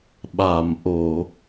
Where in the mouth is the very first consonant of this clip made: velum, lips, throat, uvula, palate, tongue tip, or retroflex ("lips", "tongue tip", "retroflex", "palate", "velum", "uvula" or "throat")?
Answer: lips